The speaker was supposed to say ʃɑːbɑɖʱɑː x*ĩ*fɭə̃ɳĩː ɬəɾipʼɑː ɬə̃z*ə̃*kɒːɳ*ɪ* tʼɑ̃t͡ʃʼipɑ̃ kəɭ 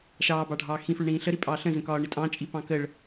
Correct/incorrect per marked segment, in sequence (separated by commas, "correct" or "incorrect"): correct, correct, correct